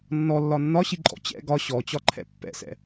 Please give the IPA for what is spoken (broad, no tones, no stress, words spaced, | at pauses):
nːɔlːɒ nːɒɕiǃʼɔ̰ t͡ɕɛ̰ ɡɒ ɕɔt͡ɕɒǃʰɛ̰ pːɛ̰sɛ̰